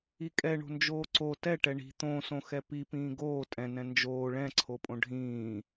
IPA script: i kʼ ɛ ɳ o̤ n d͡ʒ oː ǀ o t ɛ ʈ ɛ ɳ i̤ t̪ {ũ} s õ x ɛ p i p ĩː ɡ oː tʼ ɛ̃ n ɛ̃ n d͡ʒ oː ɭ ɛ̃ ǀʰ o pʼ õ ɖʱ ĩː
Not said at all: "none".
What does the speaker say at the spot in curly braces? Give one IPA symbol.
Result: õ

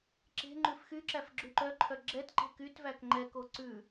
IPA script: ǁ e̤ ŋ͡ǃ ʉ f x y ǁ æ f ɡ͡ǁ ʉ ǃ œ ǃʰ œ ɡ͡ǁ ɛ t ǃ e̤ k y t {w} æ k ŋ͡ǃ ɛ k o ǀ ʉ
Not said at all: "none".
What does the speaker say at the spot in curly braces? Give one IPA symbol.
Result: v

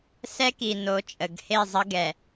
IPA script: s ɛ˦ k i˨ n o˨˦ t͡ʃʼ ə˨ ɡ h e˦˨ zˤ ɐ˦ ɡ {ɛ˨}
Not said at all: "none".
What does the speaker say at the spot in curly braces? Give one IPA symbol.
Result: ɛ˨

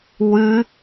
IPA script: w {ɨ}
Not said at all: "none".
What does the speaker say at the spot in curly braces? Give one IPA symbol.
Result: ɨ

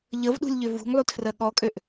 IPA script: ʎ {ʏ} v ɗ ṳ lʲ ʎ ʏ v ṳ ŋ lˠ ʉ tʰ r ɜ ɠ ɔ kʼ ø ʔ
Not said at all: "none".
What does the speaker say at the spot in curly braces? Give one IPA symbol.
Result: ə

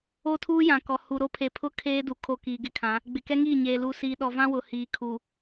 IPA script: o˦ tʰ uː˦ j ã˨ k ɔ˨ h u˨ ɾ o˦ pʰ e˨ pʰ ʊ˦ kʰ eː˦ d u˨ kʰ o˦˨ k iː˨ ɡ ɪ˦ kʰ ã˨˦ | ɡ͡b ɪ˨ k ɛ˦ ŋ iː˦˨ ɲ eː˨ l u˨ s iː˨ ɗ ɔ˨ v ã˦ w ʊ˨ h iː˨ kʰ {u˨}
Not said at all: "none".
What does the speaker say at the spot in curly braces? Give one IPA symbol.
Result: u˨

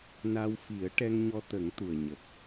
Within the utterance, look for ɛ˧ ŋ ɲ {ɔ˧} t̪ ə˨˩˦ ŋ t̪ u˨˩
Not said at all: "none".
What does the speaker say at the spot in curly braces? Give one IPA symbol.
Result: ɔ˧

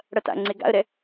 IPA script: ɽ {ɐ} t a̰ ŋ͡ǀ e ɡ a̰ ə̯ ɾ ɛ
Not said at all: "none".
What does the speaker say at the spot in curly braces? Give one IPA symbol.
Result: ɐ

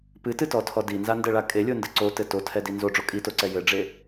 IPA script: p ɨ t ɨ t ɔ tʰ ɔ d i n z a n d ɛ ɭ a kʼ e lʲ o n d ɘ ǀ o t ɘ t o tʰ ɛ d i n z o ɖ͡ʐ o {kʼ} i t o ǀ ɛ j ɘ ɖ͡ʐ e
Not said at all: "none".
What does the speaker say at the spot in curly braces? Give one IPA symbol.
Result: kʼ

